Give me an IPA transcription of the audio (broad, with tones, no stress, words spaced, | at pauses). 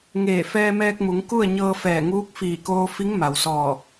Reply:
ŋeː˧˩ fɛː˧mɛː˧k̚mu˩˧ŋ ku˥˨ə̯ ɲɤː˧fɛː˧˩ŋuː˧˥k̚ fiː˧˩koː˧fi˧˥ŋ ma˩wsɔː˧˩